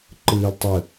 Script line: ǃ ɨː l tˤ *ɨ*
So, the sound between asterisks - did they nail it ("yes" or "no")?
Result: yes